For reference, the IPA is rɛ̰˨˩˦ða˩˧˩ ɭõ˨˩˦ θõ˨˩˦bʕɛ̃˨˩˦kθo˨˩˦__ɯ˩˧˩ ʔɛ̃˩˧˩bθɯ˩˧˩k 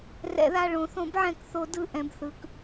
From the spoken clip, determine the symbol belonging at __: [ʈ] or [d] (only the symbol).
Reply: d